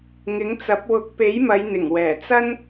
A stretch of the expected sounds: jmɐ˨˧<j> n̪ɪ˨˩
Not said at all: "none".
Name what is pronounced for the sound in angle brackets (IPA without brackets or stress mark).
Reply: j